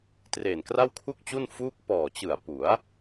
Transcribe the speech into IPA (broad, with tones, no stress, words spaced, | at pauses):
treː˨˩nkra˥˩w kʰu˥˩k̚t͡ɕu˥˩n fuː˥˩k̚ pɔː˨˩t͡ɕɯ˨˩a̯ pu˩˦a̯